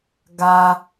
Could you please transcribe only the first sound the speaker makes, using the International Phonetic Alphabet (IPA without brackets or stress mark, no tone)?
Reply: ɡ